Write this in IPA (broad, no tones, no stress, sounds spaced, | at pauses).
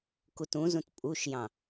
k u t ũ z ũ t pʼ u ʃ j ɑ̃